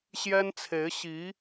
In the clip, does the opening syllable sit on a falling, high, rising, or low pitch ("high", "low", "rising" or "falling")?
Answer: high